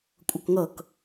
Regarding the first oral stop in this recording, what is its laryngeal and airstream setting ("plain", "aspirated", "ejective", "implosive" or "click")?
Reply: ejective